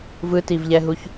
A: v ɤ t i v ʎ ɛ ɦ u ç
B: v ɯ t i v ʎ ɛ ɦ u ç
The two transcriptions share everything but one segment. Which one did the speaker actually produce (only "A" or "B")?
B